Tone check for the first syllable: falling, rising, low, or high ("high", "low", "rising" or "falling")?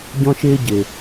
high